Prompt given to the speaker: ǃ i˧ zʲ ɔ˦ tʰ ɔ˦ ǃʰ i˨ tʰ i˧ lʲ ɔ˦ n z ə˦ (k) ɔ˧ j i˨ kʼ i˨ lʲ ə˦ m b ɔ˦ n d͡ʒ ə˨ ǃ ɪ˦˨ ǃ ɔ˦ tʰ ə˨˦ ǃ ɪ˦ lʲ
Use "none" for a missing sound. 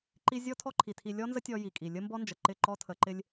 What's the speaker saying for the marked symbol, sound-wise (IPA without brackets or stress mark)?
tʲ